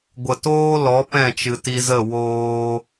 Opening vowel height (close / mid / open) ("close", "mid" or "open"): mid